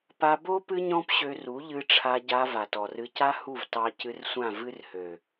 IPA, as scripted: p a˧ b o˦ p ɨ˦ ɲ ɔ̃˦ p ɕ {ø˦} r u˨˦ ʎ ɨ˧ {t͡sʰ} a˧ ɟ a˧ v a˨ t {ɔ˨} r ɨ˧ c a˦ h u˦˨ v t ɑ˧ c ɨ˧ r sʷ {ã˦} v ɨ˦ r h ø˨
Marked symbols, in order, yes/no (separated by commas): no, no, yes, no